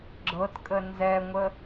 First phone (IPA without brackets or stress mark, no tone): ɡ͡ǁ